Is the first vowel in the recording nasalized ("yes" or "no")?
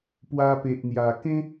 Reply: no